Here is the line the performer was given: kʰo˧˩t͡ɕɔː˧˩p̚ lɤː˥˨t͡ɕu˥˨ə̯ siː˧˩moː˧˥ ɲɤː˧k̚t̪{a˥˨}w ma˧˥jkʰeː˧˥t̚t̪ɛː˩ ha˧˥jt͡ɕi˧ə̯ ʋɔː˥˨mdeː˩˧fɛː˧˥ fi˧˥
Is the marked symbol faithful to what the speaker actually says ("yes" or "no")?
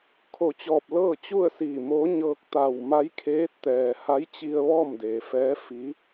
no